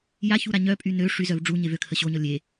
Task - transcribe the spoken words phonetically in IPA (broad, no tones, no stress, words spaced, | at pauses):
jaçuɾa ɲœpʼy nø ʂyzœv ɖ͡ʐuɲev økʰə ɕoɲɔ lʲe